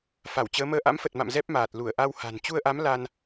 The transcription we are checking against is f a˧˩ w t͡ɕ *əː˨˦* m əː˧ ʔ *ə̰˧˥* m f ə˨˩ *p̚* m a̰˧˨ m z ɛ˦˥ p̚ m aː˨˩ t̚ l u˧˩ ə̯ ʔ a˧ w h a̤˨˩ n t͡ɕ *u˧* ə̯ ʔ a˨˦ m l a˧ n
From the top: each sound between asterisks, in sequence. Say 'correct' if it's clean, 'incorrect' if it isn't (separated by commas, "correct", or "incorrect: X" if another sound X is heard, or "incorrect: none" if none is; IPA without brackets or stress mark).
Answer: correct, incorrect: a̰˧˥, incorrect: t̚, correct